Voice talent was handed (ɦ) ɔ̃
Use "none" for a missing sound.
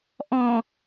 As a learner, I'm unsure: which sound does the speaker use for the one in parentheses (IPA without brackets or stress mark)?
ʔ